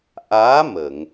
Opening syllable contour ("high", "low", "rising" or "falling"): rising